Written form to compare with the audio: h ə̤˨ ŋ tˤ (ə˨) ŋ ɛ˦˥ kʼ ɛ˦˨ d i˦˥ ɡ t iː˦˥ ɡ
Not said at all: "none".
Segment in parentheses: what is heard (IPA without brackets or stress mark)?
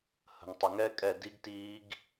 ə˨